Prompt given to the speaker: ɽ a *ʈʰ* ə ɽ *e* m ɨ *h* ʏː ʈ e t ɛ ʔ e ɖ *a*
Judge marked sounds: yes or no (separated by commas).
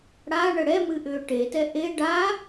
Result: no, no, no, yes